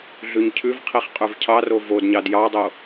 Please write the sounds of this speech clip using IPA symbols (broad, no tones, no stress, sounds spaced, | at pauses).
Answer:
ɮ ʉ ɲ cʰ ʉ v qʰ i χ qʼ ʉ v cʰ ɑ r o v o d ɲ ɑ d j ɑ dˤ o